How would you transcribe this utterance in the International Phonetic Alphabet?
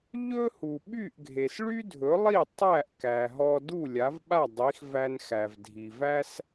ʎɵ˥hu˩ɓy˥˩ʔ ɡʱe˩sɭy˥dʱɵ˩˥lˠi˥˩ tˤæ˥˩ʔ kæ˩ɦɔ˧du˥˩ lʲa˩˥vɓa˥˩dˤi˩˥xvæ˧n xæ˩vdʱi˩væ˥s

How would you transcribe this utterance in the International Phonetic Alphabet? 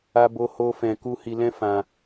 a˦bo˦ ho˦fɛ̃˧ku˦ hi˧lɛ̃˦ fã˧

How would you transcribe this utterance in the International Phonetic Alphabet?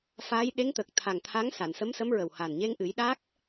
faː˧˥jɗe˧˥ŋt̪ə˨˩k̚ t̪ʰa˨˩ŋ t̪ʰa˧˥ŋsa˨˩˨nsə˧˥msə˧˥m ɹə˨˩wha˨˩n ɲe˧ŋʔɨ˨˩˦j ɗa˦˥k̚

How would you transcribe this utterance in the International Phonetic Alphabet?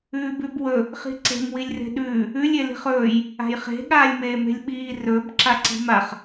ʉːbʉbwɵ | χi̤ǀe̤m wilʲre̤ɗʉː | ʉlʲ eli̤χɵːj | a̤jχe̤ ɠaːlʲmeːme̤lʲɓiː rɵb ǁaǀi̤maχ

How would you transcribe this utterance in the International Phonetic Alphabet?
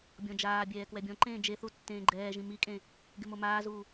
bʲɔ̃d͡ʒaːbʲɛː kwɛbʲɔ̃ǃẽː d͡ʒeθu tːẽːɡ͡ǃɛːʒĩ mikʼẽ | ɡɪmomaːzuː

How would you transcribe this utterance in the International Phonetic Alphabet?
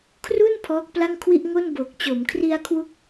kʰru˥˩n pʰɔː˦˥k̚pla˥˩ŋkʰwi˥˩ʔ ŋo˥˩nbo˨˩k̚ t͡ɕo˩˦mkʰri˧a̯ kʰwu˥˩k̚

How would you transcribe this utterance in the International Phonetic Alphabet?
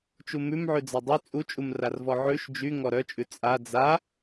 t͡ʃumʉmʕʉ d͡zadˤy t͡sʼut͡ʃʼumrarvɔ ʕʉʃ d͡ʒy ŋɔɾœt͡ʃʼʉ t͡sʼa d͡za

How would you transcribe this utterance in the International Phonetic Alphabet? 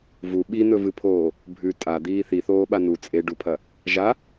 vu ɓin̪ɵvɨpʰoː | bʱʉ tʼad̪iː θiθoːɓa nu t͡sʼeɖupʰɐ | ʒa

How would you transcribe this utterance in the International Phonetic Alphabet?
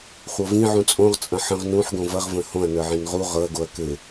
χʷɤvĩ ʕũt͡sʼõʁ t͡sʼɐ̃ħə̃ʁ nũħɡõ vɐʁvə̃ hõɐ̯nə˞ʕĩn ʁu ʁɤɐ̯ɡoɐ̯ kɘ

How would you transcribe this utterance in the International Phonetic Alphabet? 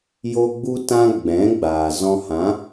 jo˧ ɡ͡bu˧tã˧ ɡ͡bɛ̃˨˦ɡ͡baː˨zɔ̃˧ hã˨˦

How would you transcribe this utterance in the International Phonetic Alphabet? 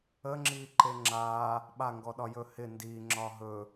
ə ŋ͡ǁiːǃeŋ͡ǁaː | ɓaŋɡɔɗɒjɵ hɪ ndiːŋ͡ǁɒː ɦɵ

